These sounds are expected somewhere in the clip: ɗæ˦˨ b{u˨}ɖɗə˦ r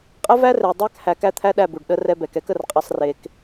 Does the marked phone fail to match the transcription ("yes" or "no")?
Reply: no